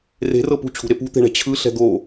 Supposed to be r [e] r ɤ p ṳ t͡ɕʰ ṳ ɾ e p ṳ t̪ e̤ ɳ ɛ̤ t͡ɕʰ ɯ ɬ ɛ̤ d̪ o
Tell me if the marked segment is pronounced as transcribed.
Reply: no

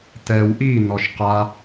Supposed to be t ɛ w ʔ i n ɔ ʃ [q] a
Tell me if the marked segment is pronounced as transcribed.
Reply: yes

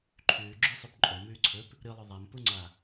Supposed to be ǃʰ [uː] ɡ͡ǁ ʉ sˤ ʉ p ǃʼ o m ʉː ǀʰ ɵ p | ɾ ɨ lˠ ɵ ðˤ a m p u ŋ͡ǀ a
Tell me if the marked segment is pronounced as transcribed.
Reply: no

